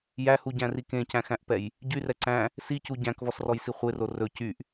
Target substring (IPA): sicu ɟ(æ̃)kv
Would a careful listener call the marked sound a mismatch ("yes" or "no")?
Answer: no